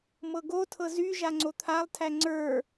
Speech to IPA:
m ɤ ɡ o tʰ ɤ z y ʒ a ŋ͡ǀ o t̪ʰ a lˠ tʰ æ ŋ͡ǀ ə˞

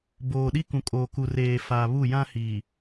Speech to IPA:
b oː˨ ɗ i˦ k ũ˨ kʼ oː˨ k u˨ r eː˨ f a˨ β u˦˨ j ã˦ h iː˨

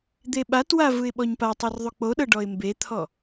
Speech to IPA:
d̪ e ɓ a t w a v ɯ ɪ̯ ɓ ɔ ɲ p a tˤ i r ðˤ u k͡p o ɗ ɤ ɖ ɔ ɪ̯ m b e t̪ʰ ɔ

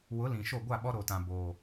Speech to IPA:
w ʊ˨˦ l ĩ˨ ʃ o˦˨ ɡʷ a˦˨ ɓ ɔ˦ ɾ o˨ t ã˨ b oː˨

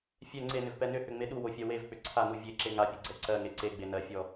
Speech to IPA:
fʲ ɛ ŋ͡ǀ e n ʏ v p ɛ n ʏ h ʏ ŋ͡m e ɗ u w o fʲ ɜ w e v k͡p ʏ ǀʰ a n u vʲ e ǁ e ŋ a pʲ u ɡ͡ǀ ɛ ǀ ɜ ŋ e ǀ e ɡ͡b e n ɜ fʲ ɔ

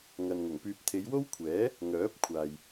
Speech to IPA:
ŋ ɐ˨ n ŋ ʊ˨˩ ŋ p yː˧ p̚ t̪ʰ e˨˧ j w o˥ w kʷʰ ɛː˨˥ | ŋ œː˨˥ p̚ kʷʰ aː˨ j

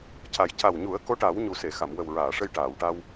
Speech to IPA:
c a˨˩ j c a˨˩ w ɲ u˨˩˦ ə̯ k o˧˥ ʈ a˨˩˦ w ɲ u˨˩ s e˨˩˨ x a˨˩˨ m w ə˨˩ w ɹ aː˨˩˨ ʂ ə˧ j ʈ aː˨˩˨ w ʈ a˧ w

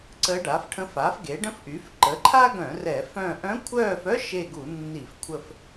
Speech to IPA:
ǀ ə˧˥ ɖ a˩˥ f ʈʰ ə̃˧˥ f a˩˥ f ɡ e˩˥ ɖ ə̃˥ f ʔ y˩˥ f ǃ ə˩˥ ǃʰ a˥ ɡ œ̃˧˩˧ r ɛ˧˩˧ f œ̃˦˨ ʔ œ̃˧˥ kʷʰ œː˦˨ f œ˥ ʃ e˦˨ ɡ u˧˩˧ nː i˧˩˧ f kʷʰ ə˦˨ f

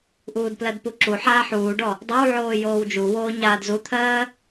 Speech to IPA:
ʔ uː d p l ɜ d p u ǁ u ħ aː ħ uː ɖ ɔ | dˤ o w ʕ oː j oː w d͡ʒ u w oː ɲ aː d z u t̪ʰ ɜː

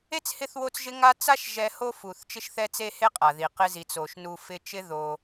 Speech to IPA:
e˥ t͡s h ɪ˦ θ w o˦ t͡s ʒ ɪ˦ ŋ a˦ t͡s a˥ ʃ ʒ ɛ˦ h o˥ f u˨ θ t͡ʃ ɪ˥ ʃ θ ɛ˥ t͡s e˥ h e˥ qʼ a˩ ð i˩ q ɪ˦ z i˩ t͡s o˩ ʃ n u˨ f ɪ˦ t͡ʃ ɪ˥ ð o˨

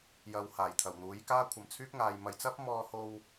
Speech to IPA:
j ɐ˧ w h aː˨˩ j t̪ʰ ɐ˨˩ w n̪ uː˨˥ j k aː˥ kʷʰ ɐ˨ m t͡sʰ yː˥ k̚ ŋ aː˨ j m ɐ˨ j t͡s ɐ˥ p̚ m ɔː˧ h o˧ w

